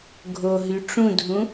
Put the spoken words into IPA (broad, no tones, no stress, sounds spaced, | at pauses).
ɡʱ o ɦ y ʈ͡ʂ ũ dʱ ũ